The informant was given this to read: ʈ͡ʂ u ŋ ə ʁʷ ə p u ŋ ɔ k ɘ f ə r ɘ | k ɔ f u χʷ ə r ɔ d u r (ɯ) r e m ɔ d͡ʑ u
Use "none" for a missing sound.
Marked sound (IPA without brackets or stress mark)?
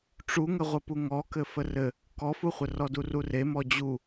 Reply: u